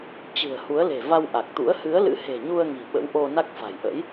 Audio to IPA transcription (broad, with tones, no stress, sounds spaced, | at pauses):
t͡ɕ ɨ̤˨˩ ə̯ h u˨˦ ə̯ l e̤˨˩ v a˧ w ʔ a˨˩ k̚ t̪ ṵ˧˥ ə̯ h ɨ˨˦ ə̯ l ɨ̰˧˥ h e̤˨˩ ɲ u˧ ə̯ ŋ i̤˨˩ ɓ ə̰˧˥ w ʔ o˧ n a˦˥ k̚ f a̤˨˩ j ʔ ə̰˧˥ j